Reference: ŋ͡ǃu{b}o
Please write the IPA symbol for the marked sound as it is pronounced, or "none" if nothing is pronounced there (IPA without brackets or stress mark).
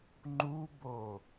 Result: b